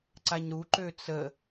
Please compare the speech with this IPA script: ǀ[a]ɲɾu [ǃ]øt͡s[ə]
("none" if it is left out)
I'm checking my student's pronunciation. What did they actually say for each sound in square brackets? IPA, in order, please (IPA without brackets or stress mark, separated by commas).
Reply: a, ǃ, ə